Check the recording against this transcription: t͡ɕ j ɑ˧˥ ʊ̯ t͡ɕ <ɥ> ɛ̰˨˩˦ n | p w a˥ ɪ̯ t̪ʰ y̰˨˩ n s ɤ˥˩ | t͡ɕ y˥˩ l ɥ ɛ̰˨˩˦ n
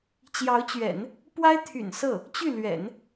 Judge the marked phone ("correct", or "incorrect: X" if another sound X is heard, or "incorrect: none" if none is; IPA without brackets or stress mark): correct